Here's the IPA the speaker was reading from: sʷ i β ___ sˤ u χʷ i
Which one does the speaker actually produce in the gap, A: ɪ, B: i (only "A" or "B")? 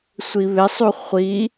A